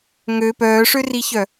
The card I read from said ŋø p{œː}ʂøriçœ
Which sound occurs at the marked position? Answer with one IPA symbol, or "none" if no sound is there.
œː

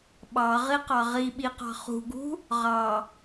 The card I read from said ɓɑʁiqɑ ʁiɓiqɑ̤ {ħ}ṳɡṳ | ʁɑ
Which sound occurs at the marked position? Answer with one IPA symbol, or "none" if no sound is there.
χ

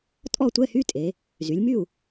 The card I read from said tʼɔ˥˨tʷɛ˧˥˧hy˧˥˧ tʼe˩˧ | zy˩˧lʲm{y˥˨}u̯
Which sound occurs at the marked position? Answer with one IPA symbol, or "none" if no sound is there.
y˥˨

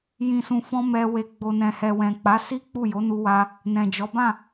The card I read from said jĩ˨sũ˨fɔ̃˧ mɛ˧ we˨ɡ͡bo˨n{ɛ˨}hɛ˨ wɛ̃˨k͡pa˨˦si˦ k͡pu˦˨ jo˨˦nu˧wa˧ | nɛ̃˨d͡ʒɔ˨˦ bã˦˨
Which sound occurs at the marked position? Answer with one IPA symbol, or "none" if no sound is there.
ɛ̃˨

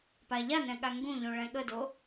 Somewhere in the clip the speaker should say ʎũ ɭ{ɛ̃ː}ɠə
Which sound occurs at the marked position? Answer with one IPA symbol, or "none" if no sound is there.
ɛ̃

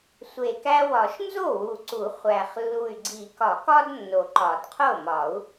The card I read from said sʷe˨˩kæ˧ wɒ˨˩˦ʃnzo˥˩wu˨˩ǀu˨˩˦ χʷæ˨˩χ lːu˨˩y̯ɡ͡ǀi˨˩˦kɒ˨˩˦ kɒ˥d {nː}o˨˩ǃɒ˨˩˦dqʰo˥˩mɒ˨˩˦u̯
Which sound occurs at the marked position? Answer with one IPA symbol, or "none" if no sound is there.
nː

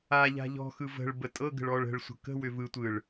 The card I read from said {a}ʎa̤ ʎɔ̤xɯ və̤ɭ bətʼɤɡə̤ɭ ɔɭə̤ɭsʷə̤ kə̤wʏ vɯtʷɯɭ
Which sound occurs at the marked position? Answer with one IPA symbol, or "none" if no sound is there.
a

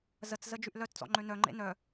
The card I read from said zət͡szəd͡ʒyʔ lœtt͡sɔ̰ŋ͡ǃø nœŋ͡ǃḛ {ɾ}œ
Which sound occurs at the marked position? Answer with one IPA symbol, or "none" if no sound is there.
n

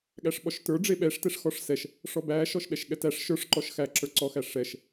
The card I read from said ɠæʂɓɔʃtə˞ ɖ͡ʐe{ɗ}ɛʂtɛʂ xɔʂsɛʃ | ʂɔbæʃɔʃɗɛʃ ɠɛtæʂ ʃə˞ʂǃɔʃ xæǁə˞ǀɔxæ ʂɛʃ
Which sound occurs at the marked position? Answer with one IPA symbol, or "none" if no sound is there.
ɓ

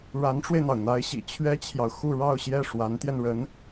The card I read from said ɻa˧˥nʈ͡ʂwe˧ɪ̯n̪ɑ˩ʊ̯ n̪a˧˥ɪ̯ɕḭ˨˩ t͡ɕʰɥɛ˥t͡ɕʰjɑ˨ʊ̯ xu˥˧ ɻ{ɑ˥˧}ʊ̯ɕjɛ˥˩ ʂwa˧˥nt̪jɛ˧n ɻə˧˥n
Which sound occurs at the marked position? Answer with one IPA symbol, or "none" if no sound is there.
ɑ˥˧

